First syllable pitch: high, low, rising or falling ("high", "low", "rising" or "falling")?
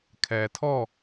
low